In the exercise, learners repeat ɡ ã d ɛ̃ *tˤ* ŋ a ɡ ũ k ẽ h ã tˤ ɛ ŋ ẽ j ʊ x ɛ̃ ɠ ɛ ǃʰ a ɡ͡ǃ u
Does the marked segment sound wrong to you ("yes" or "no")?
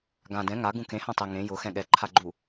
yes